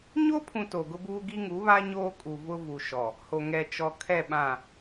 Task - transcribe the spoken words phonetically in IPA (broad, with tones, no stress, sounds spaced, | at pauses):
ɲ o˦ pʰ ũ˨ t o˨ ɡ ʊ˦ b uː˦ ɡ i˦ ŋ u˨˦ β a˦ ɲ oː˦ kʼ u˨ v ʊ˦ v u˨ ʃ ɔ˨ | h o˨ ŋ ɛ˨ t͡ʃ ɔ˨ kʰ ɛ˦˨ ɓ ã˦˨